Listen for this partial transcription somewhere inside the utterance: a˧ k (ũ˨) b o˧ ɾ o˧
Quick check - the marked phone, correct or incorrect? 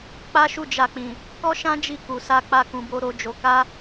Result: correct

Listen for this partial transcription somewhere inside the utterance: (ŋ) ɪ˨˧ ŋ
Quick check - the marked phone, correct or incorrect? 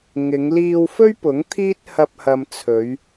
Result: correct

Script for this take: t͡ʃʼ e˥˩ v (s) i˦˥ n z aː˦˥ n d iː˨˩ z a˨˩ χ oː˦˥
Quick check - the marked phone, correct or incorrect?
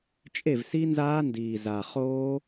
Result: correct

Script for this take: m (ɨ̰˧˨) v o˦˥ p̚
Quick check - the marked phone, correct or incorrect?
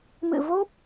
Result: correct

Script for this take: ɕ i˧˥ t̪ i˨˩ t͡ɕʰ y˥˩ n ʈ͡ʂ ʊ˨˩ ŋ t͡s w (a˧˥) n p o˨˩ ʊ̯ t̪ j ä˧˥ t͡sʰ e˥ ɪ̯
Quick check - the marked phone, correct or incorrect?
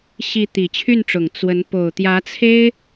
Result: incorrect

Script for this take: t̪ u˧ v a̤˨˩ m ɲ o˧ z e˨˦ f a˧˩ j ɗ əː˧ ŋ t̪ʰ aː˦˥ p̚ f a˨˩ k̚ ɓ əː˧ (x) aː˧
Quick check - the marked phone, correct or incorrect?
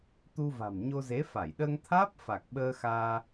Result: correct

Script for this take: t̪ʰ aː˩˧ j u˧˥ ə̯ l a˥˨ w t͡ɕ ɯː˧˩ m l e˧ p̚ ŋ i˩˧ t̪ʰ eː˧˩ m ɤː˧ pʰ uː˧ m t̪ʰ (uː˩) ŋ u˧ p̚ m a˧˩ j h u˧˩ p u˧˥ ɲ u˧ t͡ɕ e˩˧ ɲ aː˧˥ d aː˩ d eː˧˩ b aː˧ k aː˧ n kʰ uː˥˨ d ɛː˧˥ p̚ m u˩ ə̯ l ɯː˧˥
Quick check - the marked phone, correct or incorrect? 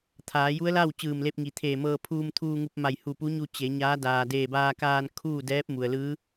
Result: incorrect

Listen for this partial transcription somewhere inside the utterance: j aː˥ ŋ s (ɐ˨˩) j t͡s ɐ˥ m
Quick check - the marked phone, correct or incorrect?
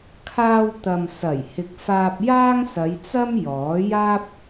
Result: incorrect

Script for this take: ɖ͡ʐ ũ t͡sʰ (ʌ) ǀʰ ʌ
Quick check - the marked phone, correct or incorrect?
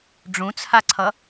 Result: incorrect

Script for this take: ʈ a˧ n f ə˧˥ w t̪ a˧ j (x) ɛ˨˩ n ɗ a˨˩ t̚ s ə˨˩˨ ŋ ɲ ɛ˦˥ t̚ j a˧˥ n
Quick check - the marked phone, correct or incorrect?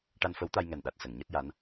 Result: incorrect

